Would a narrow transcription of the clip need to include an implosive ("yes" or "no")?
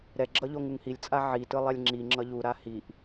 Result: no